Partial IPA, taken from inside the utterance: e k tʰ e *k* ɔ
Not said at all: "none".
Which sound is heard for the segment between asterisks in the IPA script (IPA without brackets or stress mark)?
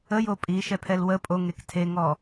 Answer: ŋ